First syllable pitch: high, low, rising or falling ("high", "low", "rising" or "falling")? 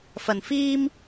low